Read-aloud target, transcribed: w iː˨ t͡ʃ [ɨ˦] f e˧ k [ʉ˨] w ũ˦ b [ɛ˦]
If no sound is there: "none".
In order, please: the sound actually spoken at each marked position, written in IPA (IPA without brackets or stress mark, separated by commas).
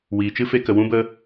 ɨ˦, ə˨, ə˦